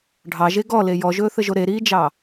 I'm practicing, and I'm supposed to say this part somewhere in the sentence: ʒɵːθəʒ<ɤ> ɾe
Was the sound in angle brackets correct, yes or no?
no